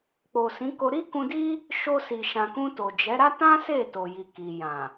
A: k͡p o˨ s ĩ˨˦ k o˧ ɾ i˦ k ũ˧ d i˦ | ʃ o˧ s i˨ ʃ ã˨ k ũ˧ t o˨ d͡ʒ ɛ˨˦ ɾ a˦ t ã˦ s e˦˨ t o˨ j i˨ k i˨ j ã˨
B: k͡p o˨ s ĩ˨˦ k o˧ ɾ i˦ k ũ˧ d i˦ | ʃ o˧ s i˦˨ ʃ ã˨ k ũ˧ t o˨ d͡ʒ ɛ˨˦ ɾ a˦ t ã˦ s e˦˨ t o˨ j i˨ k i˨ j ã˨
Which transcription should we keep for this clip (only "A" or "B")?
A